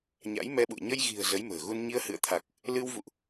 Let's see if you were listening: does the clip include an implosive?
yes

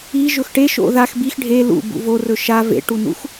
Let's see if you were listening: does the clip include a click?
no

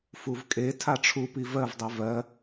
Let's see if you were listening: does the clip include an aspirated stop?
yes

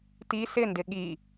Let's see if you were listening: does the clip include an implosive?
yes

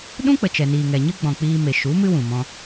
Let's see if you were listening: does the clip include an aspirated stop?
no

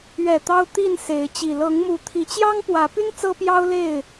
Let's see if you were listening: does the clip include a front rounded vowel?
yes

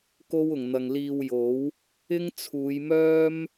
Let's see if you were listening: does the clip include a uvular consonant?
no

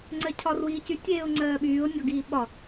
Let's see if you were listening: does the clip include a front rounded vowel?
yes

